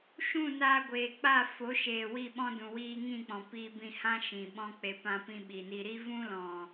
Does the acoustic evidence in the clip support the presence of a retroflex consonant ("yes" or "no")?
no